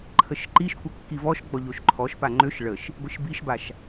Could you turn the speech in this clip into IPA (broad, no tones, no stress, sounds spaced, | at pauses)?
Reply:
ǃʰ ə ʃ ǃ i ʃ kʷ ə kː i v ɔ ʃ ɡ͡b ɔ ʎ o ʃ ǃʰ ɔ ʃ p a ŋ͡ǃ ø ʃ ɭ ə ʃ | ɡʷ i ʃ b i ʃ b a ʃ